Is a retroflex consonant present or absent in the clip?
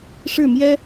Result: present